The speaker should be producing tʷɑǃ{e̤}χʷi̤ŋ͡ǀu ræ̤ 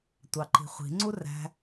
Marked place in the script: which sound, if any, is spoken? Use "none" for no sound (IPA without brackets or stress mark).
i̤